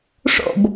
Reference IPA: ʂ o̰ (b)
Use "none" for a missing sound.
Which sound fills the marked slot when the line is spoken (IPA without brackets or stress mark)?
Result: b